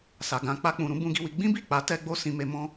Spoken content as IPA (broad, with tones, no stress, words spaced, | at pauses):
sa˨ɡã˧ k͡pa˧k͡pũ˨ ɾũ˨˦bũ˧ɡi˧wi˧ ɡ͡bĩ˦bi˦˨ k͡pa˨˦ tɛ˧ɡ͡bo˧ sĩ˧me˧ mɔ̃˦